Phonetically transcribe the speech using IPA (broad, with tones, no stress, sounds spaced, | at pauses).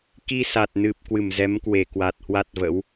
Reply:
k i˧ s a˨˩ t̚ n ɨ˨˩ p̚ k w ɨ˧˩ m z ɛ˨˦ m k w e˧˩ k w a˨˩ t̚ h w a˦˥ t̚ v ə̰˧˥ w